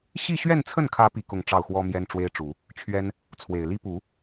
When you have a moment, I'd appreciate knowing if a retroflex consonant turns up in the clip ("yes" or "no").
yes